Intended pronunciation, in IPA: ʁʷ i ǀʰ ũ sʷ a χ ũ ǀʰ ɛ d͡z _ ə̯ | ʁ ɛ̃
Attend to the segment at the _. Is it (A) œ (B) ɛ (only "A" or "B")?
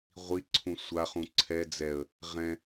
B